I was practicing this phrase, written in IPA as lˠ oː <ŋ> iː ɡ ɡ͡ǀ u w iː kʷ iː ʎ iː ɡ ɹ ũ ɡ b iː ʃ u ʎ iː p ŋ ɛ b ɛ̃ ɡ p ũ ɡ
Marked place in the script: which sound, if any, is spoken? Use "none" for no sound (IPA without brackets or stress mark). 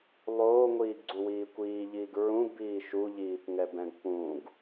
ŋʷ